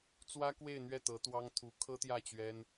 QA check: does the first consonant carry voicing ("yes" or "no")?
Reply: no